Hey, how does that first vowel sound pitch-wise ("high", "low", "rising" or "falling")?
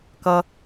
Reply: high